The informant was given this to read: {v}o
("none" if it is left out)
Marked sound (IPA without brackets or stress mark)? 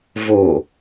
v